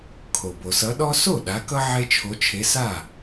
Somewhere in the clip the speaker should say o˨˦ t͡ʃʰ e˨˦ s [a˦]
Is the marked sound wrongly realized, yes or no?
yes